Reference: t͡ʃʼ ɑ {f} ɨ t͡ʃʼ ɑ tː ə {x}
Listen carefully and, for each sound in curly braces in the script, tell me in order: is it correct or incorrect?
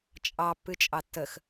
incorrect: pː, correct

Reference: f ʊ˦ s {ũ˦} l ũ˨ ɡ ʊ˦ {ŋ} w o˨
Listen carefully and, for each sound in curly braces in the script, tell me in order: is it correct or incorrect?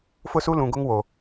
incorrect: u˦, correct

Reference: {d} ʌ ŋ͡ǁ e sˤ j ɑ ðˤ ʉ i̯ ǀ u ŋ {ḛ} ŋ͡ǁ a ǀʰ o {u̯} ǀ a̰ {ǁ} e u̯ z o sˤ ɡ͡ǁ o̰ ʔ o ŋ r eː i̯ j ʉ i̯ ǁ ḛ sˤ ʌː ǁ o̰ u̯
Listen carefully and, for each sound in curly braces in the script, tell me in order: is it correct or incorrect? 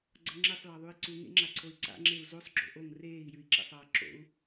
incorrect: ɡ͡ǀ, correct, incorrect: y̯, incorrect: ŋ͡ǁ

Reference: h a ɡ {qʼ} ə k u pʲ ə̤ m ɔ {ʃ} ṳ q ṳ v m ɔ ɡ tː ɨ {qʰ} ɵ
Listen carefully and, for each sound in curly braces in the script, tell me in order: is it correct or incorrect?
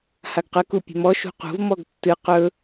incorrect: q, correct, incorrect: q

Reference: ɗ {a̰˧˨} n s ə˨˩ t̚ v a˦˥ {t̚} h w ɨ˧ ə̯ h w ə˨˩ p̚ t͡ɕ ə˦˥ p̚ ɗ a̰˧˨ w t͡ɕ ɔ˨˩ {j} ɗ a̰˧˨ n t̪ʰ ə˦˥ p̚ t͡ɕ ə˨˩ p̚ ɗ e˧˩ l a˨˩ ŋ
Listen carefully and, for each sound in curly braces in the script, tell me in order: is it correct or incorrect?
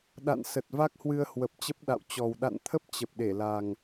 correct, incorrect: k̚, incorrect: w

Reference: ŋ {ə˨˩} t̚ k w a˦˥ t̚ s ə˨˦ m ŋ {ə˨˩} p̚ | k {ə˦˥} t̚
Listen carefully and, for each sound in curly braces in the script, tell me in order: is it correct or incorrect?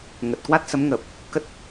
correct, correct, correct

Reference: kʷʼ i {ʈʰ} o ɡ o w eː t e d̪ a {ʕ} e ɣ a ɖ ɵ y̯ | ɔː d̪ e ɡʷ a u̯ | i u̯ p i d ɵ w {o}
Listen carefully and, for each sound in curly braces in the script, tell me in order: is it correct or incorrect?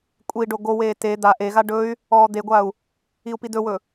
incorrect: ɖ, incorrect: ʔ, incorrect: ɵ

